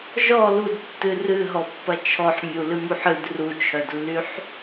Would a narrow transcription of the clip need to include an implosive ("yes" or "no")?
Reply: no